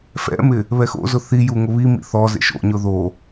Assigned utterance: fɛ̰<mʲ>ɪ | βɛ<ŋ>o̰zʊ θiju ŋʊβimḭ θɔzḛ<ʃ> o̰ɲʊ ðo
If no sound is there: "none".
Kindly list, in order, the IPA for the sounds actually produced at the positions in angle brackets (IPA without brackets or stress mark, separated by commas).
m, x, ʃ